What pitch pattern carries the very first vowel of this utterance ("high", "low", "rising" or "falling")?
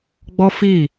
high